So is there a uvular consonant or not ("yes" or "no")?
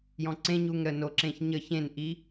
no